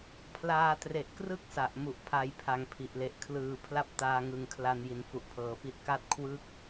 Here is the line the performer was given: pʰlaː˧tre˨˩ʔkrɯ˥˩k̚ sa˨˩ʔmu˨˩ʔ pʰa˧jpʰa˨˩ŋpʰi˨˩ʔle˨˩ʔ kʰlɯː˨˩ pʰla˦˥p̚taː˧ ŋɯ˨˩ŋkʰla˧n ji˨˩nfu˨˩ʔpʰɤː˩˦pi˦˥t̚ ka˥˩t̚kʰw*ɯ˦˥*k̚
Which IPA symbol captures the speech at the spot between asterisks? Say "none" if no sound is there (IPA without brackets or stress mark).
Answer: ɯ˥˩